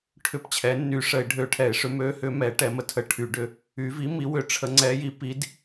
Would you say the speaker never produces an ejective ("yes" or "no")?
yes